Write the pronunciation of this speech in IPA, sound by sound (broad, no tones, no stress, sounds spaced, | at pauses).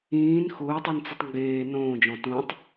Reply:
ĩː n x ʊː tˤ i n t͡s ʊ tˤ ŋ ɡ eː n õː d͡ʒ ɔ̃ t ũ tˤ